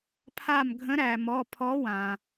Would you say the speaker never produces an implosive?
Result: yes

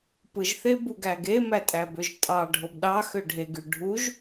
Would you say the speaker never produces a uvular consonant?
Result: yes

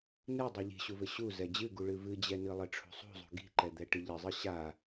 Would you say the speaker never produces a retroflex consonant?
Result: no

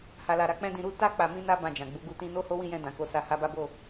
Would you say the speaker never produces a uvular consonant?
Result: yes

